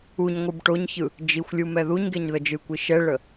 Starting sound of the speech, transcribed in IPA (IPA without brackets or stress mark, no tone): u